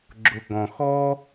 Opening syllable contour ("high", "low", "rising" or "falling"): high